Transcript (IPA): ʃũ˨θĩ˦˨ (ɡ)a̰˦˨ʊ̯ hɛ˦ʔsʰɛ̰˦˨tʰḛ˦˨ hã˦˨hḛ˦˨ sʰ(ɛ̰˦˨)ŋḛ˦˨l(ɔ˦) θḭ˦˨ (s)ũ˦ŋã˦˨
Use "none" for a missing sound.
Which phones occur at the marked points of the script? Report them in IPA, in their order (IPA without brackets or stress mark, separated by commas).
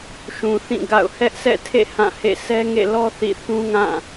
ɡ, ɛ˦, ɔ˦, θ